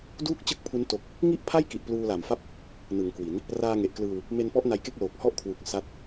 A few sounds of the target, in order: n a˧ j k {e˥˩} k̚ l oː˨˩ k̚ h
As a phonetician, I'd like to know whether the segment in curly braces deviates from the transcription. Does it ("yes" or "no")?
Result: no